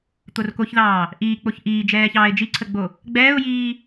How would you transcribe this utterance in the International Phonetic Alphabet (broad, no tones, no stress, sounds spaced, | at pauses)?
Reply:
t̪ o r k o ç ð ɑː | ʔ iː k͡p o ç ʔ iː d͡ʒ ɛː ç ɑː ɪ̯ d͡ʒ i ǀʰ ə ɡ͡b o | ɡ͡b ɛː ʊ̯ j iː